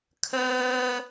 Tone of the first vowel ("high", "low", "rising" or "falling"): high